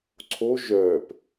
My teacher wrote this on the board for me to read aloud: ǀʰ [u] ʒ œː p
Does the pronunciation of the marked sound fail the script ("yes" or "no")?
yes